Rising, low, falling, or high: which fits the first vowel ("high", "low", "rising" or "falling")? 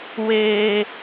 high